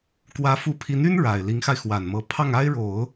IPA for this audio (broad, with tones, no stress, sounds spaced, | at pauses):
k w ä˧˥ f u˧˥ pʰ i˧˥ n y˥ n ɻ a˨˩ ɪ̯ l i˧˥ ŋ x a˧ ɪ̯ x w a˨˩ n m ɤ˧˥ pʰ ɑ˥˩ ŋ a˥ ɪ̯ ɻ o˨˩˦ ʊ̯